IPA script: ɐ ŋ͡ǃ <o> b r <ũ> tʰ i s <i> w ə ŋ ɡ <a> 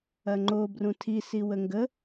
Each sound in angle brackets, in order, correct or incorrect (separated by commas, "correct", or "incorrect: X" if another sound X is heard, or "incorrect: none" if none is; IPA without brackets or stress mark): correct, correct, correct, incorrect: ə